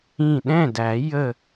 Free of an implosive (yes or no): no